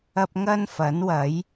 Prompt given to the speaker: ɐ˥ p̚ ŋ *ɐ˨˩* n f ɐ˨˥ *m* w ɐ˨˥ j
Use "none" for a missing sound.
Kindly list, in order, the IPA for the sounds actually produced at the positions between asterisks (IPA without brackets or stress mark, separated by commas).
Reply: ɐ˥, n